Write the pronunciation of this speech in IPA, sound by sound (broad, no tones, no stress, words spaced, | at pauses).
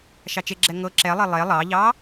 ʃɑt͡ʃeɡ͡ǁɛ ŋɤ ǁɛlˠe lˠe lˠɑʎɑ